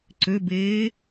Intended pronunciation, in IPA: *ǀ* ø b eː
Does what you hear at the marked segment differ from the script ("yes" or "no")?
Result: no